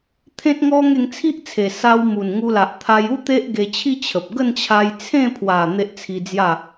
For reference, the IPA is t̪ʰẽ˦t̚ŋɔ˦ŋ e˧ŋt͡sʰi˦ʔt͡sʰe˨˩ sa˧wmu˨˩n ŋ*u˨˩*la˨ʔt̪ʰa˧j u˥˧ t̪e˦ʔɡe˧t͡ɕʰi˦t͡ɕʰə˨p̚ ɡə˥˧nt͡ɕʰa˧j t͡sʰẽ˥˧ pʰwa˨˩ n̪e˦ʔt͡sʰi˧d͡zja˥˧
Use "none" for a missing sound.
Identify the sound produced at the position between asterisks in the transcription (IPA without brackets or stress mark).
u˧